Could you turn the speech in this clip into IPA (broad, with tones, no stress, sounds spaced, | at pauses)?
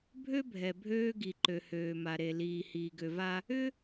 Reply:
bʱ ø˦ bʱ ɛ˨ bʱ øː˦ ɡ i˨ ǃ ø˨ h øː˨ m a˨ ɾ e˨ l iː˨ h iː˨ ɡ ø˨ v a˦ | ʏ˦